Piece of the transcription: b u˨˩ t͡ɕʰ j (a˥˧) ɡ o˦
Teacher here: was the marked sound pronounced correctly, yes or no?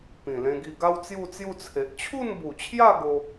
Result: yes